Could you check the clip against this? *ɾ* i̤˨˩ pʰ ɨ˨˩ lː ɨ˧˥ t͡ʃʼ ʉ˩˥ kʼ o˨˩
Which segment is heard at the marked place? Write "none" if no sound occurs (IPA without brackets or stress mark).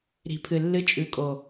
ɾ